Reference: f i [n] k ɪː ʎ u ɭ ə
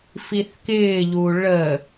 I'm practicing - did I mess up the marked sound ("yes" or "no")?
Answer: yes